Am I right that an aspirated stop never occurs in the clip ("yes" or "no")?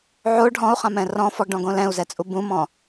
yes